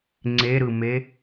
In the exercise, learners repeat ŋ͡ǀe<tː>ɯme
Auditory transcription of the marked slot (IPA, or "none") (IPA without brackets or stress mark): ɾ